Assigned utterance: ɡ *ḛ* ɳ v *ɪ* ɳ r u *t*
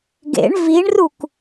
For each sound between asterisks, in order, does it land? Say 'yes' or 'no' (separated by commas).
yes, no, no